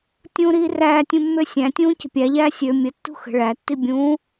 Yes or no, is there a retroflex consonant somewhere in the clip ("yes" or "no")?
yes